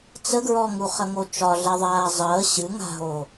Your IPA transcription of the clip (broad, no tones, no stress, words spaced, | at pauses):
t͡səɡɹɔŋu χəŋot͡ʃɒ ɮɛðˤaːzˤəː ɕɨ ŋa̤ɦo